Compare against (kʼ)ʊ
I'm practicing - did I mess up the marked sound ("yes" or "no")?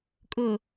no